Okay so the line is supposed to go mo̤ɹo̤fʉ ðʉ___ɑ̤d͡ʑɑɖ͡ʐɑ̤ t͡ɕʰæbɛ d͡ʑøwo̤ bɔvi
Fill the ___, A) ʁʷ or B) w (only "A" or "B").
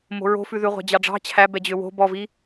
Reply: A